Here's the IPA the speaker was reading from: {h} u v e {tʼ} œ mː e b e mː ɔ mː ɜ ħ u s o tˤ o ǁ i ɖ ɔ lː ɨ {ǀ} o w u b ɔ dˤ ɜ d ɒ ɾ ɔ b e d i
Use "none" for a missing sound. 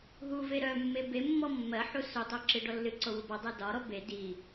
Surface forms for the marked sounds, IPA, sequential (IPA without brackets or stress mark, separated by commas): ɦ, ɾ, ǀ